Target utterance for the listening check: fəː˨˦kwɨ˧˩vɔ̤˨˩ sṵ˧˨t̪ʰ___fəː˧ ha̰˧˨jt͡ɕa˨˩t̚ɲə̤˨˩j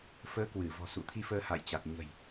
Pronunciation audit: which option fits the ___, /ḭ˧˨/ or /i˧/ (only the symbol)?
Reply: i˧